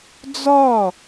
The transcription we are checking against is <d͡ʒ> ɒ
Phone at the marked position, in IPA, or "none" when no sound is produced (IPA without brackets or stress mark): d͡z